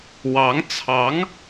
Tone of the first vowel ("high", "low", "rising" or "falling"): rising